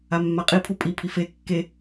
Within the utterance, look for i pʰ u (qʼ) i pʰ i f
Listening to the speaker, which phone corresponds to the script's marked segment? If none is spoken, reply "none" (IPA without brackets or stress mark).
pʼ